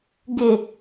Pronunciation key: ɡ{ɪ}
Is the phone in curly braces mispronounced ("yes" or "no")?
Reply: no